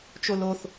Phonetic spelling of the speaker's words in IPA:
t͡ʃ o l o θ

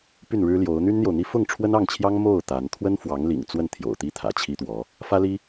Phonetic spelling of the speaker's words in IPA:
p y˥˩ n ɻ ɻ̩˥ l j o˧˥ ʊ̯ n̪ y˥ n n̪ j o˨ ʊ̯ n̪ i˥ f ʊ˥˩ ŋ ʈ͡ʂʰ w ə˥ n ɑ˥˩ ŋ t͡ɕʰ j ɑ˥ ŋ m o˥˩ ʊ̯ t̪ a˧˥ n t̪ʰ w ə˥ n f w ɑ˧˥ ŋ l ḭ˨˩ ŋ t͡s w ə˥˩ n t̪ʰ j o̰˨˩ ʊ̯ t̪ i˥˩ t̪ʰ ä̰˨˩ t͡ɕʰ i˥ t̪ w ɔ˧˥ | f ä˥ l i˥

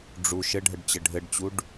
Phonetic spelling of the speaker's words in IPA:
ɖ͡ʐ u ʃ ɘ ɖʱ ə ɖ t͡ɕ ɘ ɖʱ ɘ ɖ t͡ɕ u ɖ

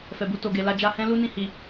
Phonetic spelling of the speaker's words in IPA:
f ɛ˨ b u˧ t o˨ ɡ e˨ l a˧ d͡ʒ a˧ h ɛ̃˦ l u˦ n ĩ˦˨ h i˨

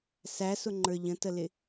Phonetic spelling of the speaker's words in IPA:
s æ s ʊ ŋ͡ǃ ə˞ ʎ ə̃ t ə l ɪ

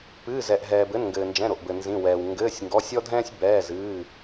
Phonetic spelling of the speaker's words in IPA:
p ɨː˩˧˩ z ɛ˩ ʔ ɦ ɛː˩ b ɘ˩˧˩ n ŋ ɡ ɘː˩ n d͡ʒ ɛ̃˩˧˩ ɾ o˩ ʔ b ɘ˩ n z ĩ˩˧˩ w ɛː˩ w ŋ ɡ ɘː˩˧˩ sʲ ŋ ɡ ɔ˩˧˩ sʲ ɔ˦ dʱ ɛ̃ː˦ sʲ b ɛː˩˧˩ z ɨː˩˧˩

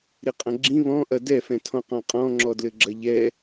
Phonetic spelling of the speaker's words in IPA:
ɾ i qʼ ɐ̃ ɡ͡ǁ ĩ β ɔ̃ ʔ ɐ d ɛ f ɛ̃ tʰ ɔ̃ q ɔ̃ qʼ ɔ̃ ŋ͡ǁ ɔ d l ɘ ɡ͡ǁ ɐ ʎ ɛ

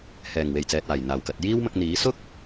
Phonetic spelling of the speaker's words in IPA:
h ɛː˨˩ ŋ w e˨˩ j t͡s ɛː˨ t̚ aː˨˩ j n̪ aː˨˩ w k ɐ˨ t̚ j iː˥ w m ɐ˧ k̚ n̪ iː˨˥ s ʊ˥ k̚

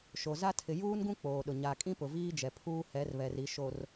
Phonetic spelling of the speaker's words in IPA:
ʃ o˨ z a˦ tʰ ɪ˨ j uː˦ n ɡ ũ˦ k͡p oː˨ ɗ ʊ˨ ɲ a˨ kʼ ĩ˦ p ʊ˨ v iː˦ d͡ʒ ɛ˨ pʰ uː˦ h ɛ˨˦ r β ɛ˨ r i˨ ʃ o˨ r

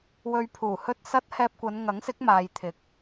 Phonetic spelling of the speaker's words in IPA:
w ɵ˧ ɥ pʰ uː˨˩ h ɵ˥ t̚ s ɐ˥ t̚ h ɛː˧ p̚ kʷ ɐ˨˧ n ŋ ɐ˨˥ ŋ s ɪ˨˥ k̚ m aː˨ j t̪ʰ ɪ˨˥ k̚

